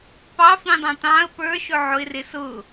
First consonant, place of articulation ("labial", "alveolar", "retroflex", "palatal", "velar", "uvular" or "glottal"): labial